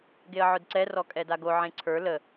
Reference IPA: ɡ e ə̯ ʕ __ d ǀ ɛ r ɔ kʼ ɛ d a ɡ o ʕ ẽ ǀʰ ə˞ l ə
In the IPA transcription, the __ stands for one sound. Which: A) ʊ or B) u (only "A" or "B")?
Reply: A